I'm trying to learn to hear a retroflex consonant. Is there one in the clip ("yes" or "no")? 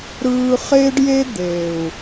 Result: yes